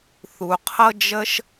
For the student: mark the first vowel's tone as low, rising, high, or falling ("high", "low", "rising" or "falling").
low